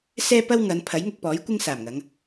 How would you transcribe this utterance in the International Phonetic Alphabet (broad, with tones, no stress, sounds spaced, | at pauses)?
s ɛː˥ p ɐ˥ w ŋ ɐ˨˧ n pʰ ɐ˨˥ j ŋ ʊ˧ k̚ p ɔː˨˥ j kʷ ɪ˥ ŋ s aː˨˩ m ŋ ɐ˨˧ ŋ